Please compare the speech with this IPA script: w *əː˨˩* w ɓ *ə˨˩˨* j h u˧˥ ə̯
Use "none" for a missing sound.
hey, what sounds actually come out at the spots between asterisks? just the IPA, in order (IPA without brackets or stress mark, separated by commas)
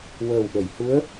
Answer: əː˨˩, ə˨˩˨